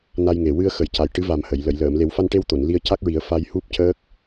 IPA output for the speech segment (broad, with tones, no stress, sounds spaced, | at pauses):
n a˧ j ŋ e˨˩ w ɨ˧ ə̯ x ə˨˩ j c a˨˩ j ʈ ɨ˧˥ v a˨˩ m h ə˨˩˨ j l ə˨˩˨ j l əː˨˩˨ m l e˨˩˦ w f a˧ n ʈ e˧ w t̪ o˨˩˨ n l i˧ ə̯ c a˦˥ k̚ ɹ i˨˩˦ ə̯ f a˧ j h u˦˥ p̚ c əː˦˥ k̚